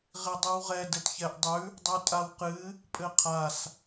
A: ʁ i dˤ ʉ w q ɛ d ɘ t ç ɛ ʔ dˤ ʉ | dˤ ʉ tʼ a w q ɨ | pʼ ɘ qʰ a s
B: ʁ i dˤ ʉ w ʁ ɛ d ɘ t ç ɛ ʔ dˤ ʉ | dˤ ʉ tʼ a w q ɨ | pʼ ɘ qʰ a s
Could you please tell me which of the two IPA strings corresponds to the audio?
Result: B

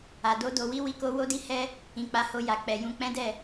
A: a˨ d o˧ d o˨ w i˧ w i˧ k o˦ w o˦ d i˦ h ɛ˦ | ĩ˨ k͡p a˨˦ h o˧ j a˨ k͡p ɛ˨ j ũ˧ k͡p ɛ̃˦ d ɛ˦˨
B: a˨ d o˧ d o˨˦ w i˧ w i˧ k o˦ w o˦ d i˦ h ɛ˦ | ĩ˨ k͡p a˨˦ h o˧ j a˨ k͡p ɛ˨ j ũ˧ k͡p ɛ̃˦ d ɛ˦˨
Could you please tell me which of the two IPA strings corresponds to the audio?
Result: A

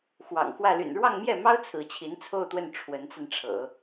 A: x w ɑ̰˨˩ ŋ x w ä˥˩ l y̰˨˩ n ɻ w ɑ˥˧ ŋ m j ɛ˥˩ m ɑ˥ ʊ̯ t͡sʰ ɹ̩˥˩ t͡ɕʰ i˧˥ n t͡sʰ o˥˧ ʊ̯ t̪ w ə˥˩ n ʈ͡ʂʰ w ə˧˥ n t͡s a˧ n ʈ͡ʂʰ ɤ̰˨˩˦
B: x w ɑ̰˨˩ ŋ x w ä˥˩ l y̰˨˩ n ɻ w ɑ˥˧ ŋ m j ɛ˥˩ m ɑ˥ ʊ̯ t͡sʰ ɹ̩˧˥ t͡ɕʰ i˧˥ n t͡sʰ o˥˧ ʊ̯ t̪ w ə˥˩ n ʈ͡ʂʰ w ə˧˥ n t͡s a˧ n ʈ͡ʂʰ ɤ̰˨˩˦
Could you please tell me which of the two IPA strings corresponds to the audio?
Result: B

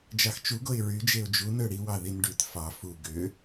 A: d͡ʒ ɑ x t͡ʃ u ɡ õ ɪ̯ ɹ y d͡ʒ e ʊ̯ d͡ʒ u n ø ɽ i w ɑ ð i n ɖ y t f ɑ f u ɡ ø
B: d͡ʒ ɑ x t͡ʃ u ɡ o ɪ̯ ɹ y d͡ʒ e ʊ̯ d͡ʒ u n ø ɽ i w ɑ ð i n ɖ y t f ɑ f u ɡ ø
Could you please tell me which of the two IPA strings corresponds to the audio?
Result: B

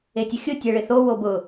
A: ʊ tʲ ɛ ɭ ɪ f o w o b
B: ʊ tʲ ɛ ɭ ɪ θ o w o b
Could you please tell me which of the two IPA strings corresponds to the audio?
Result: B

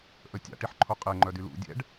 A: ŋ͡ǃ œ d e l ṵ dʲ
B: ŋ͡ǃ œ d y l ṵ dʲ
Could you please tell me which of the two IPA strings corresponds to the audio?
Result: B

